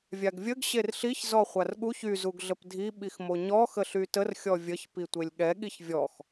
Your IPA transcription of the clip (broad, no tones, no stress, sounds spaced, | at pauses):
vʲ a ɡ vʲ ə ɡ ɕ e r ɬ i ç z ɔ χʷ a r ɠ u ç y z u ɡ ɮ ə p dʱ i ɓ i x m o ɲ ɔ x ə ɬ y t ə r xʲ ɔ vʲ ə ç p i tʷ e lʲ ɠ ɛ ɠ i ç vʲ ɔ x